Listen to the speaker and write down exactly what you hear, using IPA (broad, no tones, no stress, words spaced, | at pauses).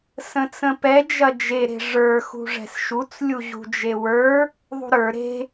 sə̃t͡sə̃pɛ d͡ʒɐd͡ʒe ɾe̤ʐə˞ xṳʐɛ̤sʃut͡s lʲuʑṳd͡ʒewə˞ | ðˤṳɾə˞ ɾe̤